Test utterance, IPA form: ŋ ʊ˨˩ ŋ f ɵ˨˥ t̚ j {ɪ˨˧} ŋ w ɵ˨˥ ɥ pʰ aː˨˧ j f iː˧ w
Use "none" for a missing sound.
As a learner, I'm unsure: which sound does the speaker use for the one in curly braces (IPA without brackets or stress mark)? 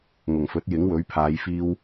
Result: ɪ˨˥